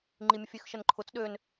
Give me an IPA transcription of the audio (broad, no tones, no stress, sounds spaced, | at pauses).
ŋ͡ǃ i mʲ ə fʲ ø x ʃ ə n ǃʰ ʊ t͡s ɗ ø n